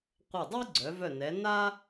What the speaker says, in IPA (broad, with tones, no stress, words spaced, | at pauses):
qʷɤ˧˩dˤi˥ɡ͡ǀœ˩˧ vœ˧˩nɛ˩˧ na˥